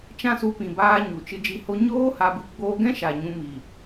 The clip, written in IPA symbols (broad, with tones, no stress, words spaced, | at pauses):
t͡ʃã˦su˧pĩ˨baː˧ ɲu˨t͡ʃɨ˧ d͡ʒi˧ho˦ ɲoː˦ ha˧bɨ˧ ɡ͡boː˧ɡɛ̃˦ʃa˨ ɲũ˧mi˨